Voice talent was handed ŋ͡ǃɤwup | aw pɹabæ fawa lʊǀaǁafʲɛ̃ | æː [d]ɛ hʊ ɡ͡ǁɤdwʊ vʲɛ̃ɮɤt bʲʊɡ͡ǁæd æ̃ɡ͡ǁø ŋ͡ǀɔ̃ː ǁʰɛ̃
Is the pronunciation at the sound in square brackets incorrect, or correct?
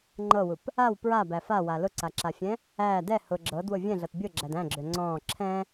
correct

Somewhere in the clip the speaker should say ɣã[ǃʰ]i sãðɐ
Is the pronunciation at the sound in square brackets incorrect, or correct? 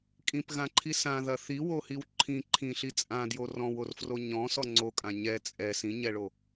correct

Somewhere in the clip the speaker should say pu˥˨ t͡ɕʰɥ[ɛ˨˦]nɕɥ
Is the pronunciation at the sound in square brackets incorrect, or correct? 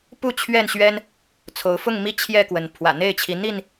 incorrect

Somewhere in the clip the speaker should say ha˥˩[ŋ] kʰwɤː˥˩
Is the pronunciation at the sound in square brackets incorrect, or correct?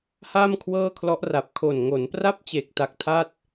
incorrect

